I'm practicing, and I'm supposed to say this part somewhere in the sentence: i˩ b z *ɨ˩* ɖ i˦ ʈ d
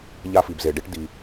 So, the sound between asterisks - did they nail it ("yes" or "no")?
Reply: no